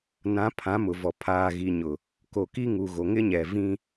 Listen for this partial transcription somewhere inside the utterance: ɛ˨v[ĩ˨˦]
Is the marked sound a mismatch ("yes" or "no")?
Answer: yes